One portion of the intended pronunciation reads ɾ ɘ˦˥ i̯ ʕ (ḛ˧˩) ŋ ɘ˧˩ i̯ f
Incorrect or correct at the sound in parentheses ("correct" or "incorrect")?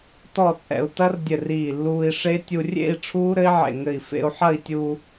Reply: correct